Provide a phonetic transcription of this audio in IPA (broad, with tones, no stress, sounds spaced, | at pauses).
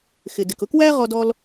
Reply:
x ɪ˩ d ɪ˩ k ʊ˥ k w æ˥ ʁ ɔ˥ d ɔ˥ l